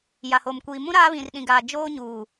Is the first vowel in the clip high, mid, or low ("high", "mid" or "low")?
low